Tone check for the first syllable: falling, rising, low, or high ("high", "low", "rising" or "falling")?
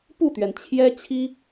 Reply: falling